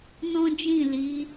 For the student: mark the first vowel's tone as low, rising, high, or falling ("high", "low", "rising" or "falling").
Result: high